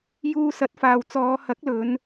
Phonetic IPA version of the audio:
j uː˧ s ɐ˨˥ t̚ f aː˨ w t͡s ɔː˨˧ h ɐ˨˥ k̚ l ɵ˨˧ n

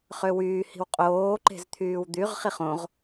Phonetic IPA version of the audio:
χ ø w yː h i̤ w qʼ oː ǃ e̤ z t̪ʰ yː w d̪ y ʁ χ i χ õ ʁ

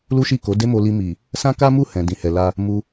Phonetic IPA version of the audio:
l u˦ ʃ i˦˨ k o˨˦ d e˦ m o˧ l i˧ m i˨ | s ã˦ k a˦ m u˦˨ h ɛ̃˨ d ĩ˨ h ɛ˨ l a˧ | m u˧

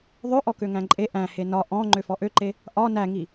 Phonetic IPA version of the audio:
ðˤ ø ʔ ɔ k ø ŋ æ̃ ǃʼ e ʔ æ̃ h e n ɒ ʔ ɔ̃ ŋ͡ǃ ø f ɔ ʔ ø ǃ e | ʔ ɒ n æ ŋ i

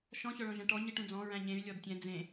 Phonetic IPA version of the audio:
ʃ ɔ̃ ç ɔ ɭ ɔ̃ ʒ æ̃ ʈ ɔ ɲ i ʈ ũ d͡z ɔ̃ ɹ æ̃ ɲ ẽ y̯ lʲ ɔ d tʲ ɛ̃ d͡z ẽ

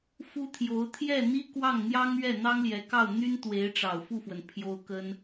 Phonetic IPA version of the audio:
f u˥ t̪ʰ j o˧˥ ʊ̯ t̪ʰ j ɛ˥˩ n̪ i˥ k w ɑ˥˩ ŋ n̪ j ɑ˥ ŋ ɥ ɛ˥˩ n̪ ɑ˥ ŋ l j ɛ˧˥ k ɑ˥˩ ʊ̯ n̪ y˥ n t̪ w e˧˥ ɪ̯ ʈ͡ʂ ɑ˨˩ ʊ̯ f u˥˩ f w ə˩ n pʰ j o˥ ʊ̯ k ə˥ n

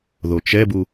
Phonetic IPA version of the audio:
ð o t͡ʃ ɛ b u

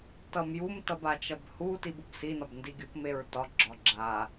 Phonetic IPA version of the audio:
t ʌ m j u m t ʌ b a t͡ʃ ʌ b h u t i b u b s i n ɒ b n d i ɡʲ u p m e ɹ t ɒ ɡ͡ǁ ɒ ɡ͡ǁ a

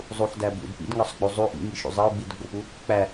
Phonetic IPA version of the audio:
zˤ u ħ d æ b ṵ d p ḭ d ŋ ɒ sˤ ɡ͡b u zˤ u ʔ ḭ ŋ i ʃ ṵ zˤ e u̯ ɡ͡b i d ɡ͡b o p u | k͡p æ

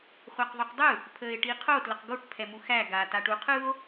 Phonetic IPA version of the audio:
χʷ æ q ðˤ u q dˤ ɯ | pʰ əː e̯ ʈ i qʰ o t l ə q ɡ o ʈ pʰ ɛ m u x æ ɡ a t a ʈ u qʰ ɯ o̯

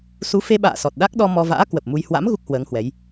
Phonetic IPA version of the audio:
s u˨˦ f e˧ ɓ a̰ː˧˨ s ɔ˨˩ t̚ ɗ a˦˥ k̚ ɗ ɔ˧ m ɔ˧ v a̰ː˧˥ k w ə˨˩ p̚ m u˧ j h w a̰˧˥ m ɣ u˦˥ k̚ h w əː˨˦ ŋ h w ɛ˨˦ j

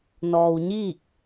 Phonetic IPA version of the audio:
n ɔː˧ w ɲ iː˥˨ k̚

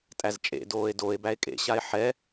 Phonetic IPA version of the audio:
tʼ æ z t͡ʃʼ ḛ d oː e̯ d o e̯ b æ e̯ kʼ ḛ ɕ a e̯ ħ ɛ

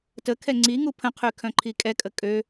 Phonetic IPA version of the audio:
t ə kʰ ɛ ŋ͡ǀ i ŋ u pʰ ə̃ qʰ y kʰ œ̃ ǃʰ i kʼ ɛ kʼ ə kʼ ø

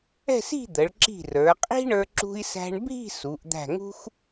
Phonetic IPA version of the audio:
ɛ̤˥˧ s i̤˥˧ d̪ ə˩˧ ɭ ǁ i̤˧˩ r ə˞˩˧ qʼ i̤˥ ɳ ə˞˧ ǁ ṳ˧ i̯ s æ̤˧ ɳ bʱ i̤˥˧ s u˩˧ ʔ d̪ æ̤˧˩ ŋ ṳ˥ x

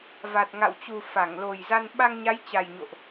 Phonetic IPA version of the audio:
v a˨˩ t̚ ŋ a̰˧˨ w t͡ɕ u˨˩ f a˧˩ ŋ l o˨˩ j z a˧ n ɓ a˧ ŋ ɲ a˨˦ j t͡ɕ a˨˩ j ɲ o̰˧˨ ʔ

